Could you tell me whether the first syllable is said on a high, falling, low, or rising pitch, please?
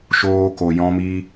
high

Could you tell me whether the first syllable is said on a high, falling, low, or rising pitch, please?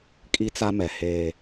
high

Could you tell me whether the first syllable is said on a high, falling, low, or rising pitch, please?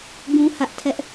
high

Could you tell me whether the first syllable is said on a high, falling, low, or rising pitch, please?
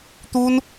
high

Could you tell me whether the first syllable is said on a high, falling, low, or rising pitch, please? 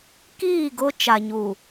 falling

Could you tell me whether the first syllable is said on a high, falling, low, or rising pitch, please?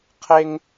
high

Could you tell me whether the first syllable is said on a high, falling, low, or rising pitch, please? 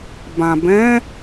low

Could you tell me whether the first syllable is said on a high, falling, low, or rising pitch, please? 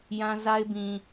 high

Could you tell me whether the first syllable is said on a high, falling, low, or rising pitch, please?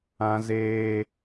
high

